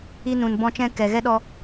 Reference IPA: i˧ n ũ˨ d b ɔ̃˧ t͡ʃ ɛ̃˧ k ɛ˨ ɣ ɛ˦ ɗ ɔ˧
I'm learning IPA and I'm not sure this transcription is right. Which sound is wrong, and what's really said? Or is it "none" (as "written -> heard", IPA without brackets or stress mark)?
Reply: d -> n